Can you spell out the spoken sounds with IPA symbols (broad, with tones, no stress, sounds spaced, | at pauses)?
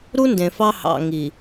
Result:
ɾ u˦ n d ẽ˨ f ɑ˦ h ɑ̰˨ ŋ i˨